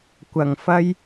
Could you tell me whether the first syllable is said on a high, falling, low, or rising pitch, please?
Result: low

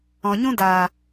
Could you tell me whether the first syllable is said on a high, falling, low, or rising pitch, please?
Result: low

